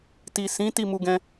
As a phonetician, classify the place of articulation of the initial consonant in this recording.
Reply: alveolar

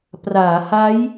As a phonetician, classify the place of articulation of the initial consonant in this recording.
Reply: labial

